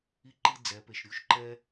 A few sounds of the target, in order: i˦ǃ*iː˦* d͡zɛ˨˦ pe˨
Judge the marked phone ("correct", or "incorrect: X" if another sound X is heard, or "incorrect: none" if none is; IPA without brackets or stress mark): incorrect: i˦